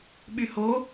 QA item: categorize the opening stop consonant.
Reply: implosive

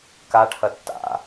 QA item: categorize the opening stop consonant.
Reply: plain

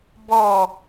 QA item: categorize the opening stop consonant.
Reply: plain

